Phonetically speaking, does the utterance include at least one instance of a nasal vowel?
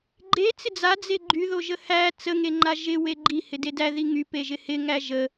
no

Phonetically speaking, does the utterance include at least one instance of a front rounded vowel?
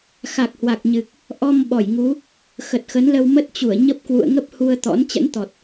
no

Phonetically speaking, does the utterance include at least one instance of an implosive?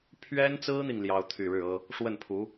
no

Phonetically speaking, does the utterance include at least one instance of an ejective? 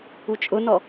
yes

